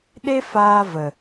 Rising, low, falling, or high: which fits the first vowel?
high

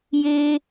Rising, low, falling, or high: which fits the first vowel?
low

